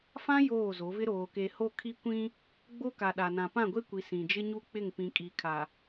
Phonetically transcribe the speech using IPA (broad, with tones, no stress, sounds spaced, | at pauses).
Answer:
f ã˦ j oː˦˨ z o˨˦ v ɪ˦ ɾ oː˨ k e˨ h o˦˨ kʰ i˦ kʷ ĩ˦ | ɡ͡b o˦ k a˨ ɗ a˨ n ã˨ p ã˦˨ ɡʷ e˦ kʷ i˨ s ĩ˨ d͡ʒ ɪ˦ ɲ u˦˨ k͡p ɪ˦˨ ŋ p ĩ˨ kʼ i˨ kʰ a˨